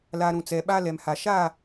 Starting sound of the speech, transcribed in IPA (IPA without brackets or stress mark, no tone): l